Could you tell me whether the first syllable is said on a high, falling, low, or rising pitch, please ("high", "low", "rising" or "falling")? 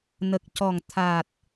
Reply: low